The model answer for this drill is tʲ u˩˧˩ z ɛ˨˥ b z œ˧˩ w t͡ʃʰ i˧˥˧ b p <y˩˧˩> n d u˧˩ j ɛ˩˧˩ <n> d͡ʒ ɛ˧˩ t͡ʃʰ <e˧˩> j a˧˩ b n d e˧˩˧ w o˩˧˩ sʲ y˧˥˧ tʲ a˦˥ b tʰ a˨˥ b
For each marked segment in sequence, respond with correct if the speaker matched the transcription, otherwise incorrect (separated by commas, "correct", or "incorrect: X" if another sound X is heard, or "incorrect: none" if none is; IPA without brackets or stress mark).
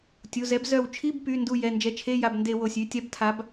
correct, correct, incorrect: e˧˥˧